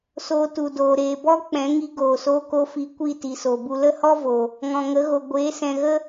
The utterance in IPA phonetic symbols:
s oː˧ t u˨ d oː˨ ɾ eː˨ b ɔ˦ k͡p ɛ̃˨˦ ŋ i˧ ɡ oː˨ s oː˦ k o˦ f i˧ kʷ i˦˨ t i˨ s o˨ b u˧ l ə˦ h ɔ˦ v o˨ | ŋ ɔ̃˨ ŋ ə˨˦ ɣ o˨ ɡʷ eː˨˦ s ɛ̃˨ ɣ ə˦

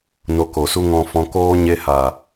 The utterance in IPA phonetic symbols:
n o˧ k o˨ s u˦ ŋ ɔ̃˧ f ɔ̃˧ k oː˦ ɲ e˧ h a˨

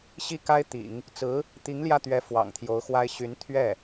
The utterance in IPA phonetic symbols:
ɕ i˥˩ k a˥ ɪ̯ t̪ ḭ˨˩˦ ŋ | t͡s ɹ̩˧˥ | t̪ i˧˥ ŋ l j ä˥˩ t̪ ɥ ɛ˧˥ f w ɑ̰˨˩ ŋ t̪ʰ j o˧˥ ʊ̯ x w a˥ ɪ̯ ɕ y˧˥ n t̪ʰ ɥ ɛ˥˩

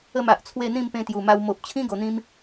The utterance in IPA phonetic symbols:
ə˥˧ m a˨ ʔ t͡sʰ w e˥˧ n̪ ĩ˥˧ m p ẽ˧ t̪ j u˨˩ m a˧ w m o˨ p̚ t͡ɕʰ ĩ˦ ɡ o˧ n̪ ĩ˦ m

